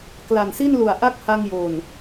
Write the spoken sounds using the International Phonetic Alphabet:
kla˨˩nsi˥˩nlu˨˩a̯ ʔa˦˥k̚ha˧ŋjo˨˩n

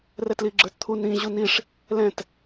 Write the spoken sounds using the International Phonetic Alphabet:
rɛtliɡ͡ǁə˞tt̪ʰu nĩʑu niʂ | lɛ̃t

